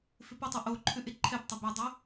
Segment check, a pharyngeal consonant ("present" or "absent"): absent